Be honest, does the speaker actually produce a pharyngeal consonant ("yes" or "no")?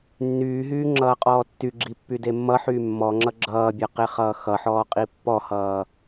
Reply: yes